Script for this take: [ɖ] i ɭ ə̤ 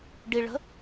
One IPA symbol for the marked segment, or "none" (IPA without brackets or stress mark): ɖ